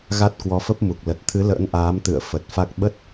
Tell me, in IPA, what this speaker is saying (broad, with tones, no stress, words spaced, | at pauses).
ɣa˦˥t̚kwɔ˨˦fə˦˥p̚mu˨˩k̚ lə˨˩t̚t̪ʰɨ˨˦lə̰ː˧˥n ʔaː˨˦mt̪ɨ̰˧˨ə̯ fə˨˩t̚fa˦˥k̚ ɓə˦˥t̚